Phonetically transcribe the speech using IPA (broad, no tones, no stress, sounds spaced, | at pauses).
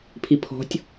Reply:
pʰ i pʰ ɔ̤ tʲ